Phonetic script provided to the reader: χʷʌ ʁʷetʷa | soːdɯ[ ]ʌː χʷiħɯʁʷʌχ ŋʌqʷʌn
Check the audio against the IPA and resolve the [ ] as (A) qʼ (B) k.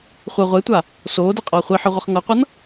A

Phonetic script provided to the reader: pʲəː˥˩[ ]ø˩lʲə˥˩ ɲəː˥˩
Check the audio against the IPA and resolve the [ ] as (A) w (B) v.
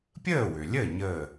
A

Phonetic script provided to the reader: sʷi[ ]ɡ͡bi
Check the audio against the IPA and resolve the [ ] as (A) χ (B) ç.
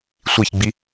B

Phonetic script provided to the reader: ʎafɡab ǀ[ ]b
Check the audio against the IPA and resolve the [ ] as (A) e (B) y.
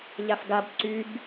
B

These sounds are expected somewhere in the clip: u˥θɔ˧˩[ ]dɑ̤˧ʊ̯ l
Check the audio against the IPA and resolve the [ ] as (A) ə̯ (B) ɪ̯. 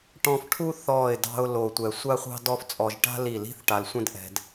B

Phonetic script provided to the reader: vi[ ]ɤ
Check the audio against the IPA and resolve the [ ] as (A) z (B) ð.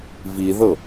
B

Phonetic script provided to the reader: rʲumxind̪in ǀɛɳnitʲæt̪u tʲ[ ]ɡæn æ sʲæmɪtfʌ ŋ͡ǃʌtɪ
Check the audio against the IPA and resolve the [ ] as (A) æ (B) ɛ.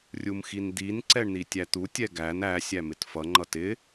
B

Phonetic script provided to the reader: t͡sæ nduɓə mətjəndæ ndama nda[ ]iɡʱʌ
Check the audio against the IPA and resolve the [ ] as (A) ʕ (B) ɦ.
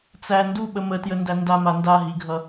B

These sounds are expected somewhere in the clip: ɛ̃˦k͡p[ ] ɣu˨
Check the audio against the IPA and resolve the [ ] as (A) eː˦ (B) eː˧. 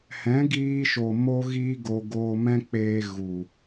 B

